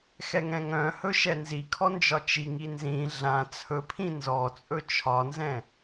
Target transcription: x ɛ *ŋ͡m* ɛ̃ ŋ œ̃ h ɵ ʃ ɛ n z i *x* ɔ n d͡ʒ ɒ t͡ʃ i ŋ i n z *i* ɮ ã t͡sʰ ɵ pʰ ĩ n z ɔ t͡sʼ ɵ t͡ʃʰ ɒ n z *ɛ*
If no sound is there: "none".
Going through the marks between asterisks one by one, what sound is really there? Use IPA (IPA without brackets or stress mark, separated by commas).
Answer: ŋ, kʰ, ĩ, ɛ̃